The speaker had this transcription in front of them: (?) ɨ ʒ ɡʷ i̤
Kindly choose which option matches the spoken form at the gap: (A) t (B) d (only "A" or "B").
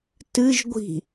A